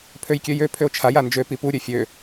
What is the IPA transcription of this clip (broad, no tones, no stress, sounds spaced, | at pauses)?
pʰ ø j kʲ ø j ø pʰ ø o̯ t͡ʃʰ a j a n d͡ʒ ø p i p u ɾʲ ø fʲ ø